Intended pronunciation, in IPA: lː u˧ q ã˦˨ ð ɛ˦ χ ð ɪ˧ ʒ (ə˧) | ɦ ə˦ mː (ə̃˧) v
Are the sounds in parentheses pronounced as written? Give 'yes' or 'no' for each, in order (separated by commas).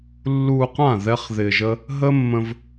no, yes